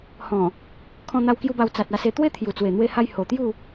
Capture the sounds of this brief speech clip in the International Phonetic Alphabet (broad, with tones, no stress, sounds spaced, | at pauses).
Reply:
h ɔ̃˨˩ | kʰ ɔ̃˧ n̪ a˧ w k j u˧ b a˧ w t͡s a˨ t̚ a˧ s e˧ t̪ w e˦ t̪ʰ j u˨˩ t͡s w e˨˩ n̪ w e˧ h a˧ j h o˨˩ t̪ j u˥˧